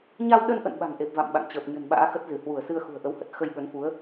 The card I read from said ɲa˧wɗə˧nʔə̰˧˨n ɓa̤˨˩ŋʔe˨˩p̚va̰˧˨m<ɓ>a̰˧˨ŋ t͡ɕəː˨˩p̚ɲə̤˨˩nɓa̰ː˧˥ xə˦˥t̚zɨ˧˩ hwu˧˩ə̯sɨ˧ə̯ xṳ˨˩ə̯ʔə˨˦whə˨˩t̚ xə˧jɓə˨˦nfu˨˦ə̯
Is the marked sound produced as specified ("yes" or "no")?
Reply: yes